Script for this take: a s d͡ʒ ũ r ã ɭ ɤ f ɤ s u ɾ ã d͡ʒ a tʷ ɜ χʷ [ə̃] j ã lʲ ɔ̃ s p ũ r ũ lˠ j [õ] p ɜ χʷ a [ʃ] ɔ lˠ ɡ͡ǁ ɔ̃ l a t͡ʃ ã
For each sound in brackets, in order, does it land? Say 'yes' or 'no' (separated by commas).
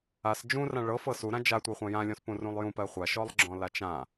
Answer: no, no, yes